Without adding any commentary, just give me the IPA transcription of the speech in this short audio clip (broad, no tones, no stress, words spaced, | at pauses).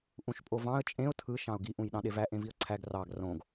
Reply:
ʔũʃpʼovɑ̃ə̯ t͡ʃʼẽʊ̯ tʰɯ ʃɑ̃ʊ̯ɡi ʔũjɗɑ̃ɗevæ ʔẽviə̯ǀʰæɡ rɑɡ rõɡ